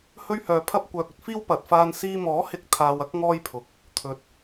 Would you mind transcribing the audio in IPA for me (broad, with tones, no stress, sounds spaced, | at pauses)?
h ɵ˥ ɥ h œː˨˧ pʰ ɐ˥ p̚ kʷ œː˨ k̚ ɵ˥ t̚ f iː˥ w p ɐ˨˥ t̚ f aː˥ n s iː˧ m ɔː˨˥ h ɪ˨˥ k̚ t̪ʰ aː˨ w ɐ˥ k̚ ŋ ɔː˥ j pʰ ʊ˨ k̚ | t̪ʰ ɵ˨˥ t̚